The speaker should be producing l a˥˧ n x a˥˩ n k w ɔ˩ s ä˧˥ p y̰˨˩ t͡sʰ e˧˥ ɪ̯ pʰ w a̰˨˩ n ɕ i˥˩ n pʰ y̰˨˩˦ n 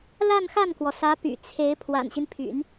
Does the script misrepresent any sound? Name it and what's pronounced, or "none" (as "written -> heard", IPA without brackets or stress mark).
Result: i˥˩ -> i˦